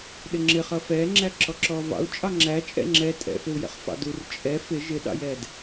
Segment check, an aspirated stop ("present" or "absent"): absent